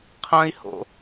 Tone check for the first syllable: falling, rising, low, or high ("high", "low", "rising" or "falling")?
high